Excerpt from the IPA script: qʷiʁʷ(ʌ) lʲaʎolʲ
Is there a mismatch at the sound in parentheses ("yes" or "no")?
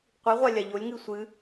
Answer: yes